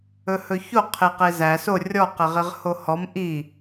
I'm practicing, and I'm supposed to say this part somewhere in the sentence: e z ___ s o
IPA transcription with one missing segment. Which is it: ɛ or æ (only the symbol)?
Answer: æ